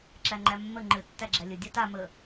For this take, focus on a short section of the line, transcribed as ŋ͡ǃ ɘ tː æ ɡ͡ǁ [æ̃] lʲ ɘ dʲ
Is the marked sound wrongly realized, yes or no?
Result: yes